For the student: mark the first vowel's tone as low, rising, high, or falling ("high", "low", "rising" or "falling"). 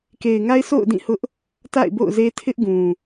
low